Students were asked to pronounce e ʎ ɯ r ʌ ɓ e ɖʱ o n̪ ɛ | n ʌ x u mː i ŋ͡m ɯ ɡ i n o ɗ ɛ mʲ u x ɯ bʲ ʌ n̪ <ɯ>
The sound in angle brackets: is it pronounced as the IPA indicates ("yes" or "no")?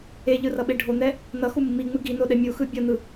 yes